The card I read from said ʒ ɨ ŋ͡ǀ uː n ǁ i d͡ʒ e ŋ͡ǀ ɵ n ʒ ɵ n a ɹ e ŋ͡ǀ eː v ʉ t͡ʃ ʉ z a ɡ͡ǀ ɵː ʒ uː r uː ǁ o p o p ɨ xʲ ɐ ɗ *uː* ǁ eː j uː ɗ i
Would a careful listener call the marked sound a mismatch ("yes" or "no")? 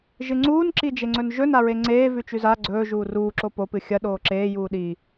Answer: yes